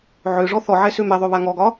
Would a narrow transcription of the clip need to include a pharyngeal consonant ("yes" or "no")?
yes